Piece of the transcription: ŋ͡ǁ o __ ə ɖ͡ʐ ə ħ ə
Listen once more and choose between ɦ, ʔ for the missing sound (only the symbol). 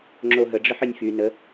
ɦ